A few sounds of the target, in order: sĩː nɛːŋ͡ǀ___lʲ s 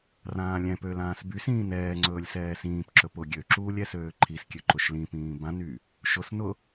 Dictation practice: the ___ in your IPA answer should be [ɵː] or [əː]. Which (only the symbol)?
ɵː